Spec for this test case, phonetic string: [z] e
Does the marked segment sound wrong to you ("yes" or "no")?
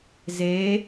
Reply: no